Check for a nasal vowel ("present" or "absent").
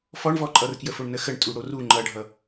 absent